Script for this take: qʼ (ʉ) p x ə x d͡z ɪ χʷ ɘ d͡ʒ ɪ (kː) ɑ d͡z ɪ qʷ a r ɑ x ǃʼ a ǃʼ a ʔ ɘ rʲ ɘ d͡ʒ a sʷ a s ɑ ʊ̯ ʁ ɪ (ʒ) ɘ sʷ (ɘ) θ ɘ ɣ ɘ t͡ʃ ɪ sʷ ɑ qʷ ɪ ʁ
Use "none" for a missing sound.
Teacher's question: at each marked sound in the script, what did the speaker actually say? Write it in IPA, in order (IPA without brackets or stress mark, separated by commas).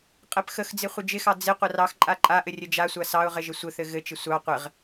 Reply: ɘ, x, ʒ, ɘ